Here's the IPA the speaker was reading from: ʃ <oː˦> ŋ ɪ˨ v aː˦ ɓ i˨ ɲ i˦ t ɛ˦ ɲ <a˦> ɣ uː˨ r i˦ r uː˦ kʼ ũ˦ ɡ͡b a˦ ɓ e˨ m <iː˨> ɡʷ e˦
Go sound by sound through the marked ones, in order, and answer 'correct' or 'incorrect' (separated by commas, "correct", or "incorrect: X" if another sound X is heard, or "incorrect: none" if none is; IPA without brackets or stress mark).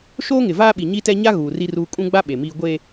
correct, correct, incorrect: iː˦